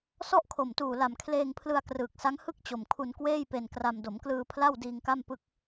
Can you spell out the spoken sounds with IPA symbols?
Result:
s ɔ˥˩ ʔ kʰ o˨˩ m t uː˨˩ l a˨˩ m kʰ l eː˧ ŋ pʰ l ɯ˧ a̯ k r ɯː˨˩ k̚ s a˦˥ ŋ h ɯ˥˩ k̚ t͡ɕ o˨˩ m kʰ u˧ n k w eː˥˩ j p e˧ n k r a˧ m d o˩˦ m k l ɯː˧ pʰ l a˥˩ w d iː˧ ŋ k a˥˩ m p ɯ˥˩ k̚

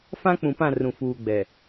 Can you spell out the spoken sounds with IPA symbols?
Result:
f ã˦ k͡p ũ˨ p ã˦˨ r ũ˨ f uː˨ ɡ͡b ɛ˨

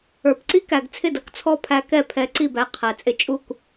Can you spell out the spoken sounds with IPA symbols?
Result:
ə˞˩ p ǀ i˥ k æ˩ ɡ t͡sʰ ɪ˥˩ d ʌ˥˩ k t͡sʰ ɔ˥ pʰ æ˧˥ k ɛ˥˩ pʰ ɛ˧˥ ǀ i˥˩ b æ˧˥ qʰ æ˩ t͡sʼ ɪ˥˩ t͡ʃʼ u˥˩ k

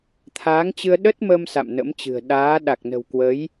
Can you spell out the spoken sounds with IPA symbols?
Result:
t̪ʰ aː˨˦ ŋ t͡ɕ ɨ˧ ə̯ ɗ ə˦˥ t̚ m ə˧ m s a̰˧˨ m n ə̰˧˥ m t͡ɕ ɨ̤˨˩ ə̯ ɗ aː˨˦ ɗ a˨˩ k̚ n ə̤˨˩ w k w ə˨˦ j

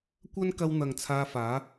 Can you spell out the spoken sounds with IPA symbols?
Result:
kʷ ɐ˥ n k ɐ˧ w n̪ ɐ˨ ŋ t͡sʰ aː˧ f aː˨˥

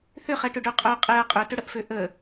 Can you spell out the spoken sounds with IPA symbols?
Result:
θ ʏ χ ɛ ʈ ʏ ɖ ø qʼ œ qʼ e ɐ̯ qʼ ʏ t ʏ ɽ ə ʔ f ø ʔ ə

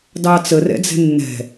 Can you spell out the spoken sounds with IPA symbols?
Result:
d ɑ t͡s ə r ɛ̰ d͡z ɛ̤ nː ɛ̤

